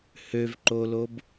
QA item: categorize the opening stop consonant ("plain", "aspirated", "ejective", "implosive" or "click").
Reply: click